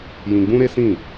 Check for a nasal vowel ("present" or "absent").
present